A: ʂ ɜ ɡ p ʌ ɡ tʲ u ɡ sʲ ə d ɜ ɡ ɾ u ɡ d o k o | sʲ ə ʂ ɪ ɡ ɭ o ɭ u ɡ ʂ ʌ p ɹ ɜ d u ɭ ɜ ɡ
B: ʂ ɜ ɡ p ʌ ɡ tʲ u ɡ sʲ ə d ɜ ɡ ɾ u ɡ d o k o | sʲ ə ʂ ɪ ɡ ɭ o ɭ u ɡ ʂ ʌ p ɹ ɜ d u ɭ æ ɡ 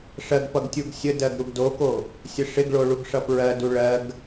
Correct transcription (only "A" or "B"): A